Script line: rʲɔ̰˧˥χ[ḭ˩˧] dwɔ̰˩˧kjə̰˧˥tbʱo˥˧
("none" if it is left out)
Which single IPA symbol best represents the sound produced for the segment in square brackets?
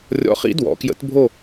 ḭ˧˥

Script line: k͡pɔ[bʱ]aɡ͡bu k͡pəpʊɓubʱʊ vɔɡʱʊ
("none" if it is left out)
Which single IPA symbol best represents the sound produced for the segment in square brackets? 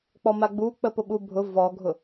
m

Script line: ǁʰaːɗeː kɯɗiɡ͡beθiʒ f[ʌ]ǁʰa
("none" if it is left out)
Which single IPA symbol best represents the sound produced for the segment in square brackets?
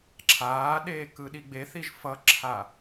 ʌ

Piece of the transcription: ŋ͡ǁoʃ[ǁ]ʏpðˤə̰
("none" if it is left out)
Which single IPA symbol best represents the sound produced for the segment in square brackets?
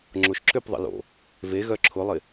ǁ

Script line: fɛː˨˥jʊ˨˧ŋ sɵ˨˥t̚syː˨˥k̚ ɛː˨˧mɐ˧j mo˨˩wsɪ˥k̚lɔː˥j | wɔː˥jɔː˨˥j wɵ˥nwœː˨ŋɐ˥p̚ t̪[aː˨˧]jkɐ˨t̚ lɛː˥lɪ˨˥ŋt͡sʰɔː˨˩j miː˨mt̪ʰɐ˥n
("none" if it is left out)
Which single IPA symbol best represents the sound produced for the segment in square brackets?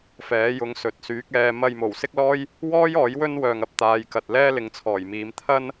aː˨˧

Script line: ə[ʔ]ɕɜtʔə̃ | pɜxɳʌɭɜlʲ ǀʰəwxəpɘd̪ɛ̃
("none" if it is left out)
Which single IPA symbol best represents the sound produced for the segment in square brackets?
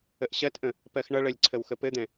ʔ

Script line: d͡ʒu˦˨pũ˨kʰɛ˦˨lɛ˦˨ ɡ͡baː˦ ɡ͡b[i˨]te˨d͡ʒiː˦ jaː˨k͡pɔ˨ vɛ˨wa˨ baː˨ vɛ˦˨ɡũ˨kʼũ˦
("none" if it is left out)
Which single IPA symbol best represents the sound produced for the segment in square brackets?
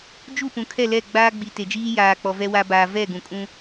i˨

